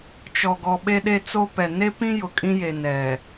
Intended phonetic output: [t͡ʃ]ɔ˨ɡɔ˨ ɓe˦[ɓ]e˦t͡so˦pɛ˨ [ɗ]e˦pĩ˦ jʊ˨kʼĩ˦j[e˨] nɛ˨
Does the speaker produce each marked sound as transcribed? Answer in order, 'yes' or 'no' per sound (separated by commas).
yes, no, no, yes